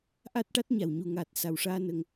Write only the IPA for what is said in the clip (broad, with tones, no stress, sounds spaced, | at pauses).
ʔ a˦˥ t̚ ʈ a˦˥ t̚ ɲ a˨˩ w ɲ u˨˩ ŋ a˨˩ t̚ s a˨˩ w ʂ aː˧ n ə˧ ŋ